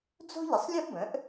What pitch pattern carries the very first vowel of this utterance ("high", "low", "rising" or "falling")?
high